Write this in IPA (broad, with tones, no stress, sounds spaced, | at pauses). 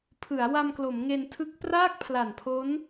pʰ ɯ˩˦ a̯ w a˧ m k l o˩˦ m ŋ e˧ n tʰ ɯ˦˥ k̚ p r aː˥˩ k̚ pʰ l a˨˩ n pʰ o˦˥ n